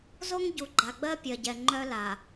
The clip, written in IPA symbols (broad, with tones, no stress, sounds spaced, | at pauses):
z o˦ ŋ ɟ u˨ ɡ͡ǃ a˨ ɡ͡b ɜ˦ pʲ ɜ˨ ɟ ɛ˨ ŋ͡ǃ œ˦ l a˨